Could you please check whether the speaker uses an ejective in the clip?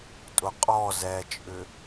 yes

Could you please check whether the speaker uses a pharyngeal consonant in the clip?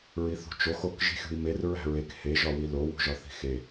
no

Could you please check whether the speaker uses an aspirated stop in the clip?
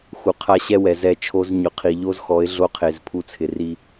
yes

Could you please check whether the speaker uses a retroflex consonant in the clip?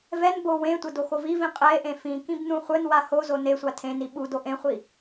no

